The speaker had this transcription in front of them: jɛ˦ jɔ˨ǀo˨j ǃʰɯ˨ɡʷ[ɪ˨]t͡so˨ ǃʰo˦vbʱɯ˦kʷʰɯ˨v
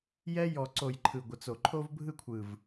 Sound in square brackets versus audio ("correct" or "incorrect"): incorrect